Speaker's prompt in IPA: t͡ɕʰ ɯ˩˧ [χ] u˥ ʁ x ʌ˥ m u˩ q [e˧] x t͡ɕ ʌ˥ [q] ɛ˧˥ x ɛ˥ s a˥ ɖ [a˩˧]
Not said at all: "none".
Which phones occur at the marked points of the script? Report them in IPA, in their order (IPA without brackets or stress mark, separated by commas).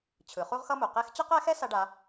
χ, e˧˥, q, a˧˥